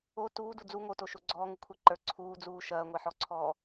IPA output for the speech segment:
o t uː d u d͡z u ŋ o t o ʃ o ɡ͡ǀ ɔː ŋ u kʷʰ ɛ ǃ ə˞ ǀʰ uː d͡z uː ʃ ɐː ŋʷ ɛ ħ ɔ ǀʰ ɔː

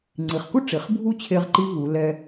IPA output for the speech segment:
ŋ͡ǀ i˩˧ χ k u˥ ʈ͡ʂ i˩˧ χ bʱ u˥˧ t͡ɕʰ e˧ ʁ ǃ i˥ v u˩˧ l ɛ˧

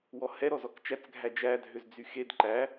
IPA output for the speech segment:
w ɔ h ɛ ɾ ɔ z ɔ k t͡ʃ æ t͡s ɡʱ æ d͡ʒ æ dʱ ø z d͡z y x e d ǃ æ

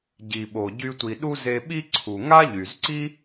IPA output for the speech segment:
ɟ i˩ ɓ o˩ ɟ y˧ tʷ i˩ ɗ u˥ z e˧ ɓ i˥ ǀʰ u˩ ŋ a˥ ʎ y˩ z ǀ i˥

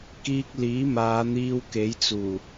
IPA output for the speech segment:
k iː˧ k̚ l iː˨˥ m aː˨˧ n̪ iː˧ w k e˨˥ j t͡s uː˨˩

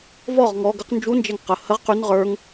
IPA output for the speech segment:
v ɔ ʁ ŋ ɔ ɡ ə q n d͡ʒ u n d͡ʒ ɛ ŋ q ə h ə ʁ q y n ʁ ə˞ ŋ

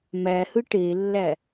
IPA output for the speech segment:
m æ h ɯ ʈ e lː æ

